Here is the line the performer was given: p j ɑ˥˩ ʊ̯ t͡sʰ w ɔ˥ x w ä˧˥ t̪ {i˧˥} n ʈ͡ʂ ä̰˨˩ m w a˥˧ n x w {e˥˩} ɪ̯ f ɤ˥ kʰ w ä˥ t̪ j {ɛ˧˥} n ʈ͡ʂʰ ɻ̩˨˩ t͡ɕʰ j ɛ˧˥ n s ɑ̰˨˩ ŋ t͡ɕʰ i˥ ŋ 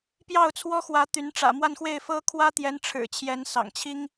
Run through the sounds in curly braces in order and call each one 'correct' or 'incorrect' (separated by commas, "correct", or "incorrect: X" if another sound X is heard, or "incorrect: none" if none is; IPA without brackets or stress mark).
incorrect: y˧˥, correct, correct